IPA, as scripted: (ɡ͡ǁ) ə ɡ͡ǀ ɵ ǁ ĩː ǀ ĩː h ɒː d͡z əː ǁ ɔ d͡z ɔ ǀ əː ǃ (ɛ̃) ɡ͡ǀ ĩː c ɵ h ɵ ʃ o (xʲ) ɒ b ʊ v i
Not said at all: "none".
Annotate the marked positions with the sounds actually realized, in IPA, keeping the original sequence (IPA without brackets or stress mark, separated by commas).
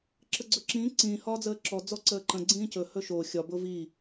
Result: ǁ, ə̃, xʲ